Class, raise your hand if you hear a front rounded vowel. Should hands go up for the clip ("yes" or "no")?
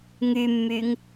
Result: yes